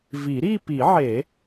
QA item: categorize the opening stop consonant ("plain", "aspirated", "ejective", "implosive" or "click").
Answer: plain